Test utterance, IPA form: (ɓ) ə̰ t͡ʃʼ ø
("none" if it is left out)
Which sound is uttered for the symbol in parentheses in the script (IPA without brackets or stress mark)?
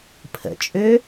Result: pʰ